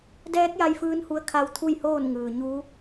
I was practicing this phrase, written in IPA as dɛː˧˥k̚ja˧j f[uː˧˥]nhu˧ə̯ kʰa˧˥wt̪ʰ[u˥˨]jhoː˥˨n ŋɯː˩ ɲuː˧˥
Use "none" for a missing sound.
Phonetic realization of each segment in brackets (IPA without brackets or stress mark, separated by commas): ɯː˧˥, u˥˨